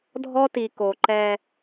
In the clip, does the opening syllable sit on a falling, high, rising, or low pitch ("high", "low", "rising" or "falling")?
high